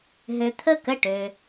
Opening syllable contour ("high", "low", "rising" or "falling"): low